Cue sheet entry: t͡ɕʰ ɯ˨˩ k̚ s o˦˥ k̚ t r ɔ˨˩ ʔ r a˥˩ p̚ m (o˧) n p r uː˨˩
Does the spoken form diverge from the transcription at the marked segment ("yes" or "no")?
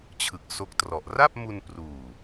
yes